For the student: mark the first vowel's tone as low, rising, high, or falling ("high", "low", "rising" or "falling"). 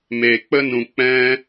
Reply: low